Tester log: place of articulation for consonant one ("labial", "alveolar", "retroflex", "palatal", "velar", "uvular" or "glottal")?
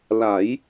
alveolar